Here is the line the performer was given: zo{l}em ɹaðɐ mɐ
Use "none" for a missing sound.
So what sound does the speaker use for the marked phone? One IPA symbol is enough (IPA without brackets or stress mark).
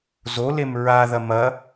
l